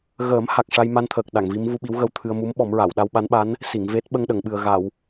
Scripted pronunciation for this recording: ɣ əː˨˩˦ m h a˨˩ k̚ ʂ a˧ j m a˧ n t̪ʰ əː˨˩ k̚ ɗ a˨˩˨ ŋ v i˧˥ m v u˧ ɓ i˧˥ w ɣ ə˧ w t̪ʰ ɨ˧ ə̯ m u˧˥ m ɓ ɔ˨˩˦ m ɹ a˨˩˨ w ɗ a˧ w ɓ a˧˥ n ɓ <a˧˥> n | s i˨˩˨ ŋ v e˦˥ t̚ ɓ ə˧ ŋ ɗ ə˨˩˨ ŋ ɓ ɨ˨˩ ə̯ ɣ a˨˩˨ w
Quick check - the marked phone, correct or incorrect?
correct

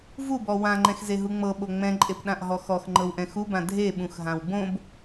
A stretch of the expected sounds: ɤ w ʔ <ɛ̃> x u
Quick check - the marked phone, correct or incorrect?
correct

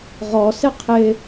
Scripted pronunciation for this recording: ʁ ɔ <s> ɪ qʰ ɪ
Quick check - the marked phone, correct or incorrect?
correct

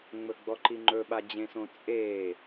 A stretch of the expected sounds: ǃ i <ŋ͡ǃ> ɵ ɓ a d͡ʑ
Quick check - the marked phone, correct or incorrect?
correct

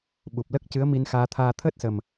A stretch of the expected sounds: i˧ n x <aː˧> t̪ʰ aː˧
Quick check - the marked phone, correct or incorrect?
correct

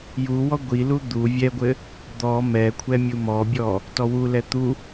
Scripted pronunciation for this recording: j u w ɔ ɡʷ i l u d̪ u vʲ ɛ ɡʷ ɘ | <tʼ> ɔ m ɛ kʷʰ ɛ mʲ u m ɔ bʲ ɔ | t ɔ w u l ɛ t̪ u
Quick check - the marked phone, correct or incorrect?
incorrect: d̪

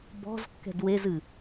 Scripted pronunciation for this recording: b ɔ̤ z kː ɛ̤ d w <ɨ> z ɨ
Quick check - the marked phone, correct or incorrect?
incorrect: e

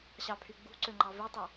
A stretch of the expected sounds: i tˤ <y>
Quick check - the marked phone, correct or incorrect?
incorrect: u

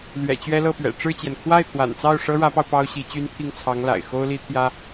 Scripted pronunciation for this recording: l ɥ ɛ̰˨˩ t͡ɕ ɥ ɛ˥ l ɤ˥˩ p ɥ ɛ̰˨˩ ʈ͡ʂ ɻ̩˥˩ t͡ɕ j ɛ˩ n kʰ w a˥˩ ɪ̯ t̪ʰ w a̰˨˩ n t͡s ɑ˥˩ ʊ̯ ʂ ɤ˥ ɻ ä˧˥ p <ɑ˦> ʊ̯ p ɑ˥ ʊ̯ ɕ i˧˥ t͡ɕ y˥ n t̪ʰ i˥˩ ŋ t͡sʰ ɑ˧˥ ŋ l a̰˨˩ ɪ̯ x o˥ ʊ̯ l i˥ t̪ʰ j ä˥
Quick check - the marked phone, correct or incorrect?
incorrect: ɑ˧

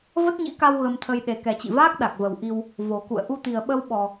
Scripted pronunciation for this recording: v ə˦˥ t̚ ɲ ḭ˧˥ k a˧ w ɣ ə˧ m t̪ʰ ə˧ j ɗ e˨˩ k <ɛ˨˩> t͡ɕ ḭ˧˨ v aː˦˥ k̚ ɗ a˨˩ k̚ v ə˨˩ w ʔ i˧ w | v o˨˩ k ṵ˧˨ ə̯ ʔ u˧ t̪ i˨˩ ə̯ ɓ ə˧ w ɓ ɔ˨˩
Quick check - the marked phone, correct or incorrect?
correct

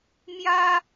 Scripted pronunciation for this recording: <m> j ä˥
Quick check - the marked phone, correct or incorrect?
correct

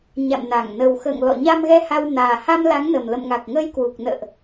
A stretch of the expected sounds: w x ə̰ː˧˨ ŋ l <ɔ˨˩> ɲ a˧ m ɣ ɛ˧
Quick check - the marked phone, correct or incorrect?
incorrect: ɔ̰˧˨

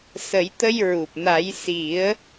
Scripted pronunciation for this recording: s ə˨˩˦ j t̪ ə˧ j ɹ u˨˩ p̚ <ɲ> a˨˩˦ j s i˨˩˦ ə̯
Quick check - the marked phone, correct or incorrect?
incorrect: n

